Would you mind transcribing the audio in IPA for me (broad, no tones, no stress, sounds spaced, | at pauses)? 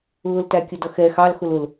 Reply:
ʊː l t æ kʲ ə d ʌ x ɛ x ɑ l x ʊ l ʊ l